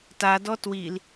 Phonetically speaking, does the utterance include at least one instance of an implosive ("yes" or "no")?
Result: no